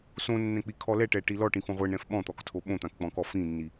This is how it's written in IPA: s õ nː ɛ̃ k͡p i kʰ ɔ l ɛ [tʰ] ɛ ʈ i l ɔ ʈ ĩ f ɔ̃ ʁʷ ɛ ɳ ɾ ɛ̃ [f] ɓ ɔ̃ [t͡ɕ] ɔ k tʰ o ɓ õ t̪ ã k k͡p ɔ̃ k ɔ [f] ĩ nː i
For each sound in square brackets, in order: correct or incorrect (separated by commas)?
incorrect, correct, incorrect, correct